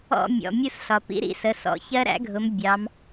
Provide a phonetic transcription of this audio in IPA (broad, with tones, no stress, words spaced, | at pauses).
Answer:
ɔ̰˥˧mʲɔ̰˩˧˩ mʲu˥˧sɬɒ˩ pḭ˦˥ɾḭ˨˦sə˩˧˩ sɔ̰˨˦ çɜ˦˥ɾæ̰˦˥ɡʱʊ˨˦m bʲɑ˨˦m